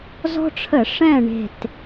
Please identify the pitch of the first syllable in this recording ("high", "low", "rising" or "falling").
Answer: high